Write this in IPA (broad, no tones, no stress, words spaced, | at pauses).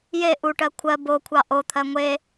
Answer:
je ʔuʈɜ kʷʰɜ bokʷʰɑ ʔot̪ʰɜ ŋʷe